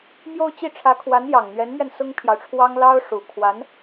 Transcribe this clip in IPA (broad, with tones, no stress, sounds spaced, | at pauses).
m j o˥˧ ʊ̯ t͡ɕ i˥˩ ʈ͡ʂʰ ä˧˥ kʰ w a˧˥ n j ɑ˨˩ ŋ n̪ ɥ ɛ˧˥ n m ɥ ɛ˧ n s ʊ˥ ŋ pʰ j ɑ˨ ʊ̯ ʈ͡ʂʰ w ɑ˥ ŋ l ɑ˥ ʊ̯ ʂ u˨˩ kʰ w a˧˥ n